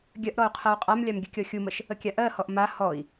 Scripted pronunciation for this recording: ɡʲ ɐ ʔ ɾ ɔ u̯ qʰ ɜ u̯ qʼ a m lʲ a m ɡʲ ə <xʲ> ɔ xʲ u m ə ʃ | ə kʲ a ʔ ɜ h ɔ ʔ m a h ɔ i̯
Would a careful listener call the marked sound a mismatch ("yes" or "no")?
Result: yes